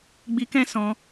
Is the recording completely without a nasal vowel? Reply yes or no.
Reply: no